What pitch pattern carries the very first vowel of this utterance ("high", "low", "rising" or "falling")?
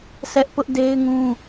high